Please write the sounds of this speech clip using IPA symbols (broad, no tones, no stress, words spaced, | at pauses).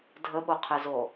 dʱəɓoqʰezo